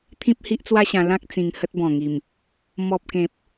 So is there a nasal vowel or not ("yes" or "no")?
yes